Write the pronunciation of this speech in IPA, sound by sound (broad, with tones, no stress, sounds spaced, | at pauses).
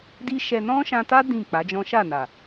d i˦ ʃ ɛ˧ n ɔ̃˦ ʃ ã˧ t a˦ d ĩ˦˨ k͡p a˨˦ d͡ʒ ɔ̃˦ ʃ a˦˨ n a˨